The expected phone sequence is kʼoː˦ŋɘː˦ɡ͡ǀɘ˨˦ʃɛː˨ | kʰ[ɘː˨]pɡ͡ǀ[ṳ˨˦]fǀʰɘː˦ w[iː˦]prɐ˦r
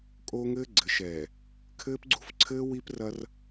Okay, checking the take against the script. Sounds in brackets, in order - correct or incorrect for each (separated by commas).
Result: incorrect, incorrect, incorrect